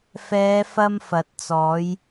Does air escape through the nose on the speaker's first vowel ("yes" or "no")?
no